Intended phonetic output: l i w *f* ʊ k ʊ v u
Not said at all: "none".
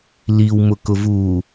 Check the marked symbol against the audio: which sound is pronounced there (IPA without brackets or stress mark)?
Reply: m